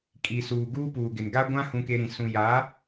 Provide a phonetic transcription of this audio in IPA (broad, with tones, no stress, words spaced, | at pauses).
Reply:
kʼi˨suː˨ ɡuː˦puː˨ɡɪ˨n ɡa˦ɡʷã˦ hũ˦ke˦ɾĩ˨ sũ˨ja˨˦